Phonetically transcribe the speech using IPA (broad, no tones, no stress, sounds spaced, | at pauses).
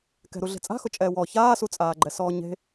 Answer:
k ɛ̤ ɾ u ɮ e̤ t͡sʼ a̤ x ʊ t͡ʃʼ ɛː w ɔ ç aː s u t͡sʼ aː ɡ͡ǃ ɛ s ɔː ɲ e̤